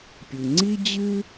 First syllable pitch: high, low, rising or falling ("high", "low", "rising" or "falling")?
low